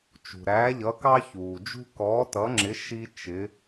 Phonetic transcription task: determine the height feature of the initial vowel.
high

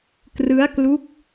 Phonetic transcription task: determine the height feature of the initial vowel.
high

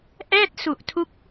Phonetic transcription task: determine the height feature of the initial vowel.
mid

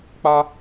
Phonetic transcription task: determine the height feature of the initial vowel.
low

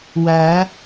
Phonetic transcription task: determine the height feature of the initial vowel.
low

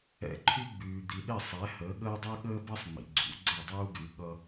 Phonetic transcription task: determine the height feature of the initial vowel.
mid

